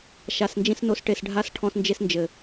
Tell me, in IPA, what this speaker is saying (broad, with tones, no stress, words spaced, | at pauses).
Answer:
ʃa˨snd͡ʒĩ˧sno˨˦s ʈe˨sɖʱa˧s ʈʰɔ̃˧snd͡ʒe˧snd͡ʒɘ˨